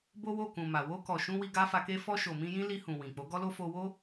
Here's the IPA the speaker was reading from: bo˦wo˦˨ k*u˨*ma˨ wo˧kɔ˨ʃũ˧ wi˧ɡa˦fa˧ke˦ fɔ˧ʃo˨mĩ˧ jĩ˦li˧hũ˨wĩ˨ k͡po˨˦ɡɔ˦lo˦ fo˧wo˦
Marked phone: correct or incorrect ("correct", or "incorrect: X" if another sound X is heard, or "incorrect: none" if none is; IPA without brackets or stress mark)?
incorrect: ũ˨